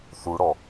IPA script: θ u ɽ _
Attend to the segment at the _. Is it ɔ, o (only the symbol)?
ɔ